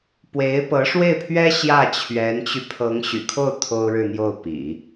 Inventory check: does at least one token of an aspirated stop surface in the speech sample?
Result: yes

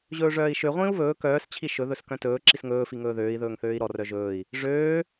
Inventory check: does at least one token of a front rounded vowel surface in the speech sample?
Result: yes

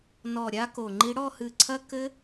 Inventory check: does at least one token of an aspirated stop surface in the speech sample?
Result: yes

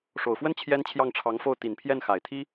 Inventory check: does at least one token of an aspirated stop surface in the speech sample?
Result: yes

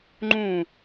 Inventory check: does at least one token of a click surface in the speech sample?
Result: yes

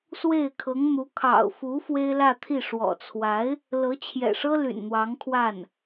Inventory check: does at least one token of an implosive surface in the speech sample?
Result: no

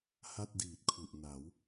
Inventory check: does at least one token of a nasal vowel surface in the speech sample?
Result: no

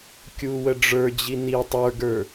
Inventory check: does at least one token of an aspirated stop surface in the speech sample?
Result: no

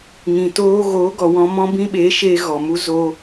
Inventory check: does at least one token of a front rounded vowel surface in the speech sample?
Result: no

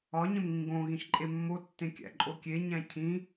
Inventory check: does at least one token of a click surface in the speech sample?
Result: yes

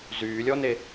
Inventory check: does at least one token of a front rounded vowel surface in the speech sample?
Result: yes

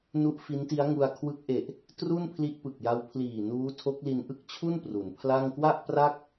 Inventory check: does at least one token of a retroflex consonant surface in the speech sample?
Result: no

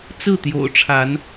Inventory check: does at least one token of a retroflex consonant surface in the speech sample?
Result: yes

